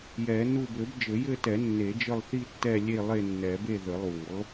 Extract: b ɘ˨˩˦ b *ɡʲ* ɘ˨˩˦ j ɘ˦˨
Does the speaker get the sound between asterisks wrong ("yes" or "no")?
yes